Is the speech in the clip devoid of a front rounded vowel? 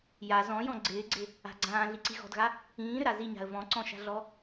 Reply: no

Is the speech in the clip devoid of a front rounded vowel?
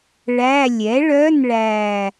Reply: no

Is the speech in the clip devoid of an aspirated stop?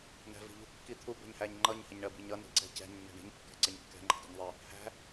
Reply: no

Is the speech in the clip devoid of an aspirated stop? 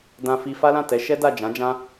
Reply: yes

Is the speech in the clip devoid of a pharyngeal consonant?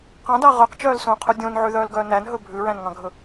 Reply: no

